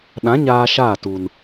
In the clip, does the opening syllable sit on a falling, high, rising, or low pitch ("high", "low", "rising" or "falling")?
rising